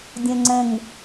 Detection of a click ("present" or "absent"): present